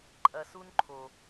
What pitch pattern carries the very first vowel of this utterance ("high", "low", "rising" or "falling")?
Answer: low